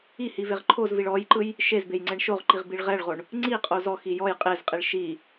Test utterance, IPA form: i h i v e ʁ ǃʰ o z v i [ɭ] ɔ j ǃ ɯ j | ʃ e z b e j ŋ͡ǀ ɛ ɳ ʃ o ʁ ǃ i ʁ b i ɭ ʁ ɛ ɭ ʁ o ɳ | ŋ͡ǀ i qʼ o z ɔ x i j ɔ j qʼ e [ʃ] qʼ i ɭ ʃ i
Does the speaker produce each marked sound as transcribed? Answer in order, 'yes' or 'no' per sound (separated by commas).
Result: yes, no